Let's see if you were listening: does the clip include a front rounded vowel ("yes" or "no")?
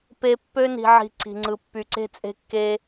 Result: yes